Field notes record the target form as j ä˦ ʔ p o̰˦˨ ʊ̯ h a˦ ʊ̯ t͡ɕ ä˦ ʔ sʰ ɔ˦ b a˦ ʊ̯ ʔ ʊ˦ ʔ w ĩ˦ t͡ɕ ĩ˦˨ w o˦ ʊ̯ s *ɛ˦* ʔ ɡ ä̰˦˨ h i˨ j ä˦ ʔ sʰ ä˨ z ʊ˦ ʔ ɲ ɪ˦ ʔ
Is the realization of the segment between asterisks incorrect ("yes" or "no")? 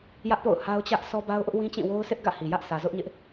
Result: yes